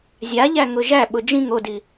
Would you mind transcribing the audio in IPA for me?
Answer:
zʲaʎæŋʊ ʒæɓʊ d͡ʒĩŋ odi

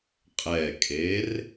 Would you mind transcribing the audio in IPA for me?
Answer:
qʼɛkʼer

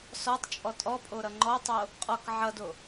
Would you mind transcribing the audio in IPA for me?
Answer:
sɔtˤ t͡ʃʼɔtʼɔpʼo ɾʌŋ͡ǃɔtˤo | qʼɔk ʕʌdo

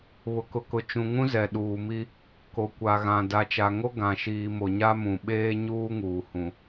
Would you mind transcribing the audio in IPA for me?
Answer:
βʊ˨kʊ˨kʊ˨ t͡ʃũ˨ŋũ˦ zɛ˨ɗuː˨mi˦ | ko˨kʷa˨ɣã˨ da˨t͡ʃa˨ŋo˦ ɡã˨ʃiː˨ mo˨ɲa˦mũ˨ ɓeː˦ɲuː˦ŋuː˨ hũ˨

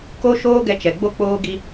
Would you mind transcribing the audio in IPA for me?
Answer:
ko˦ ʃoː˦ɡɛ˧t͡ʃɛ˨ ɡ͡bo˧k͡poː˧ɡi˧

